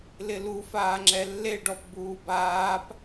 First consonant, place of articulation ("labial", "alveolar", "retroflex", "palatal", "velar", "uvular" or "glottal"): alveolar